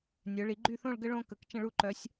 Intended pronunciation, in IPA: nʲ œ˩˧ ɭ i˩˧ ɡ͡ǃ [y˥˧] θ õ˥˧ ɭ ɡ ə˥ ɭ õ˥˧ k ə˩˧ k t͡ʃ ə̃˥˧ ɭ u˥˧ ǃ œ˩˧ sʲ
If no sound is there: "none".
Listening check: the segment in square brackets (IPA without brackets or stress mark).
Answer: y˥˧